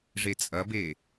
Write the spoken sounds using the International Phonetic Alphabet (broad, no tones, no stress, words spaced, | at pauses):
ʐet͡sʼɐbe